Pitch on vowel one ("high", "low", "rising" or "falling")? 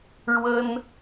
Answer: high